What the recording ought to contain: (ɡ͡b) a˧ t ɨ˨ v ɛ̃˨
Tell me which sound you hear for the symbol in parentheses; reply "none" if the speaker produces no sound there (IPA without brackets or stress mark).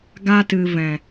ɡ